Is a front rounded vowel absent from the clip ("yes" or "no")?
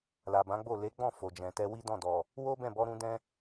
yes